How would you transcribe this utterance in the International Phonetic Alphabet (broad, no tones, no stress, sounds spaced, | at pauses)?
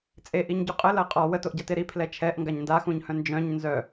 t͡sʼ e ʔ i ɲ ɟ u qʼ ə l ɐ qʼ ɔ w ə t o ʔ ɟ a t e ɾ i pʰ l ɛ t͡ʃʰ ɛ ʔ ŋ ɡ a ɲ n d a x ũ ɲ h œ̃ n d͡ʒ œ̃ ɲ n z œ